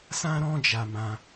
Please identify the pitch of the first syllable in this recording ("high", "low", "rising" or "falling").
high